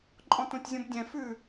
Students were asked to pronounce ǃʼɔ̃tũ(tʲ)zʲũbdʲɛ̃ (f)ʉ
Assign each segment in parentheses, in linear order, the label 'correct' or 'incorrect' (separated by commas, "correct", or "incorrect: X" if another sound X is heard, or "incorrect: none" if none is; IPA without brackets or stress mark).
correct, correct